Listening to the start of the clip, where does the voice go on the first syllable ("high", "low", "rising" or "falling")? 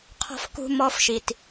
high